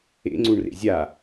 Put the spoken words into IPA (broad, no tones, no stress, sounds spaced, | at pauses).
ḛ ŋ͡ǀ u ɳ r ḛ zʲ a